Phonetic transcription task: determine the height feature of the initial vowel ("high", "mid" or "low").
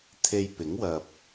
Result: mid